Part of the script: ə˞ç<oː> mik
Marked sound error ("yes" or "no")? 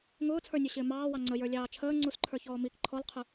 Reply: yes